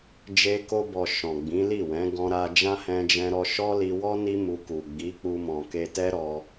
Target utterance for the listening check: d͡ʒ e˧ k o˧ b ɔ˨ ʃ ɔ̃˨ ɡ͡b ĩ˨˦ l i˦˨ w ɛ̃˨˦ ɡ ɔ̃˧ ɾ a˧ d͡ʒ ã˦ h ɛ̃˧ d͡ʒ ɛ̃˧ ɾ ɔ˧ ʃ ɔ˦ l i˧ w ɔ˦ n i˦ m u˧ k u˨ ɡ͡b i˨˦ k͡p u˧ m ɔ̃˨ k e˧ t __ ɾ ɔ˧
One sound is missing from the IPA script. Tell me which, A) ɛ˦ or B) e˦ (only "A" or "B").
A